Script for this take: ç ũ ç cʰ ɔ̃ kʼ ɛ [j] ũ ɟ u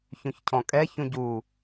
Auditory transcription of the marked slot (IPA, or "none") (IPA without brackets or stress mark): ç